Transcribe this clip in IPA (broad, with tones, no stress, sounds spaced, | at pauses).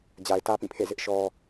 d͡ʑ a˨ ɪ̯ t ä˦ p ĩ˦˨ pʰ ḛ˦˨ z ɪ˦ ʔ ʃ ɔ˦